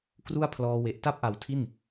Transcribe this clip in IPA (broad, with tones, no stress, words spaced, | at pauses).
kru˥˩a̯pʰlɔː˧ we˨˩ʔta˥˩p̚ʔa˨˩w tʰi˥˩n